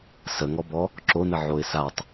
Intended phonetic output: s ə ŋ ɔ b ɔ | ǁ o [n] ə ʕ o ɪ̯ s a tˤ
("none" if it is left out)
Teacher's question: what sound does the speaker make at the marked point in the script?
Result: n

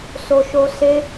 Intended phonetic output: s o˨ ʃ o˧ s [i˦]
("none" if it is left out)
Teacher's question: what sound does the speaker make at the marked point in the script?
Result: e˦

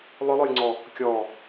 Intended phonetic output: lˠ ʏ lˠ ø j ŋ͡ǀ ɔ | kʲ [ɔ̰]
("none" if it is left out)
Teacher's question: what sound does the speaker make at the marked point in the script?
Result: ɔ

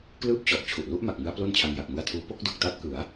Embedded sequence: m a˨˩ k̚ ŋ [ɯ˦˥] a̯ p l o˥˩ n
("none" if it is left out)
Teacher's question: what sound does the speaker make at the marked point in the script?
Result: ɯ˦˥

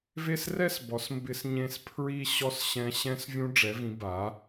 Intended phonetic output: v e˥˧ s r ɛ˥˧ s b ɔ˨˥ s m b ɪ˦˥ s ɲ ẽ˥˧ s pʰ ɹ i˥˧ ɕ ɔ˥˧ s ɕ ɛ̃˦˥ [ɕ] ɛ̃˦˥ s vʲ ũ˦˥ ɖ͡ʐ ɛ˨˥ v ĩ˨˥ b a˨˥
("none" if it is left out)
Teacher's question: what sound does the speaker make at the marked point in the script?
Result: ɕ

